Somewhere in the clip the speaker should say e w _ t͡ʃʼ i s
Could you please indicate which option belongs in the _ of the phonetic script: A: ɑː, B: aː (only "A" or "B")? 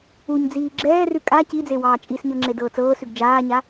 A